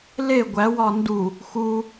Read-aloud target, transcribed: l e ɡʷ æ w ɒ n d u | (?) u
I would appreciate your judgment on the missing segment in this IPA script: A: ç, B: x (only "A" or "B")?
B